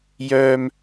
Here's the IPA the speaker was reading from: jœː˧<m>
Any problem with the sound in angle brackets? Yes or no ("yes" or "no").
no